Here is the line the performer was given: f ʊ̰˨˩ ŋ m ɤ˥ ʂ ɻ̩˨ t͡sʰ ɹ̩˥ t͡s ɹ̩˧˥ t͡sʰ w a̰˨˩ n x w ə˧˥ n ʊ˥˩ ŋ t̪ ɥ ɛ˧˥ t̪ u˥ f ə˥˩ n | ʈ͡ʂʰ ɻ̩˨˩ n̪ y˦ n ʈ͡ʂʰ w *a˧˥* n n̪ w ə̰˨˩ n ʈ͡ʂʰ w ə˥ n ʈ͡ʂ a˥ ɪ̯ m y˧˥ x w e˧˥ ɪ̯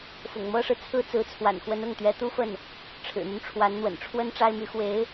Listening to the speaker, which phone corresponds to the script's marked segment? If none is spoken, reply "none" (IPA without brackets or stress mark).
a˧˥